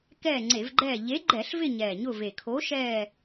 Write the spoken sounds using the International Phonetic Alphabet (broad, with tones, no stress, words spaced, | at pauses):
kɛː˦˨ŋ͡ǀe˧˩˧vɡ͡ǃɛː˦˨ ʎe˨˥ɡ͡ǃɛ˧˩˧ɬvɪ˦˨ ɲɛː˨˩ɲʊ˦˨ve˨˩ kʰo˨˥ʃɛː˦˨